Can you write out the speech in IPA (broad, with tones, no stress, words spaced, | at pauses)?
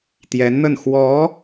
t̪jɛ˧˥nn̪ə˥˩n xwɔ˧˥